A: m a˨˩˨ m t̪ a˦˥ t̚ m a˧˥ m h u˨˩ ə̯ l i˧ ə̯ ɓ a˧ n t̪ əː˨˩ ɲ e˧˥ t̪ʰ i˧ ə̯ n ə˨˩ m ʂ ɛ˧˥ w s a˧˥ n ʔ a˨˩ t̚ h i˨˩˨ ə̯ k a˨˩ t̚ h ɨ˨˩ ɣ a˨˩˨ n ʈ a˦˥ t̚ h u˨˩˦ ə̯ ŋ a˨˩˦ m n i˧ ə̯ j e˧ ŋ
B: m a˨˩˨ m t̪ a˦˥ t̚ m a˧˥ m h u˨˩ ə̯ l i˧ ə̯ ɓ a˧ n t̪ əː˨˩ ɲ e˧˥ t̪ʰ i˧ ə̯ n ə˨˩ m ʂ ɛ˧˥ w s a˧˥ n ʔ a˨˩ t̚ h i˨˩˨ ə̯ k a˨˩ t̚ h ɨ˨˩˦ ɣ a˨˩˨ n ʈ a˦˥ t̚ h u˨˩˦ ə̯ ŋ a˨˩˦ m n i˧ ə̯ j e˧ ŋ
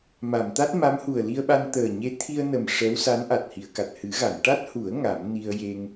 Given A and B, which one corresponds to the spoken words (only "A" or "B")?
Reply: B